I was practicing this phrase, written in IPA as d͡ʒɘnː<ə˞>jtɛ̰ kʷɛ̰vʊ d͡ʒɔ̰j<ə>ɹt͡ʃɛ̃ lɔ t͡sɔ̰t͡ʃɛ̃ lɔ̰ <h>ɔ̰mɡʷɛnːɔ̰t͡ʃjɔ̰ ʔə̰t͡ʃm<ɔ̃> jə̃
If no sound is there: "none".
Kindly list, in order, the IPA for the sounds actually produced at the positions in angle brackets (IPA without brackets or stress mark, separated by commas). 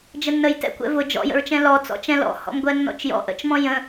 ə, ə̰, h, ɔ̃